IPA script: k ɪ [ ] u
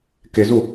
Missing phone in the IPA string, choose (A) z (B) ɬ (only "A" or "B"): A